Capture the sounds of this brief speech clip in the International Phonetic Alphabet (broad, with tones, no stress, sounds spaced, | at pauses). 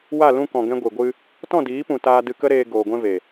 w a˦˨ l ũ˧ k ɔ̃˨ ɡ ɛ̃˧ ɡʷ i˨ ɡʷ ɨ˧ | t ɔ̃˦˨ d iː˨˦ p ũ˨ t aː˧ d ɨ˧ k ə˦ ɾ eː˧ ɡ oː˨ ɡʷ ɛ̃˧ v e˨